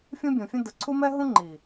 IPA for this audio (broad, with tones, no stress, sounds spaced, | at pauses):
fʲ ũ˦ bʲ ũ˨ fʲ ə̃˦ d ə˨ ǀʰ u˦ m ɛ˦ ɦ ũ˦ ŋ͡ǃ i˨